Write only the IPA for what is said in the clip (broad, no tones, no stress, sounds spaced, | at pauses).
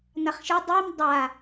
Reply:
n a χ ʃ ɘ dˤ i m dˤ a